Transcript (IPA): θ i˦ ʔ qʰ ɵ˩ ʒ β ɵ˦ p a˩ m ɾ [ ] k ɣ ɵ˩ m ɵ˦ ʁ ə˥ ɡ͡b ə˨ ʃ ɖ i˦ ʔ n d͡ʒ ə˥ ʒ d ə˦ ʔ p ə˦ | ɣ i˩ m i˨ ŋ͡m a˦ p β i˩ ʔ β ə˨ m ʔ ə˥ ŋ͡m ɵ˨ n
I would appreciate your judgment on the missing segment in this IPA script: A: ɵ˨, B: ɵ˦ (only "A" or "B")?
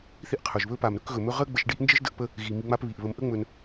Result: B